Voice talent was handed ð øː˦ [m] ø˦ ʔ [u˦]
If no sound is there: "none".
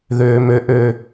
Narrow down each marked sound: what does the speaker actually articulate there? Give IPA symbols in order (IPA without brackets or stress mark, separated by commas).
m, ø˦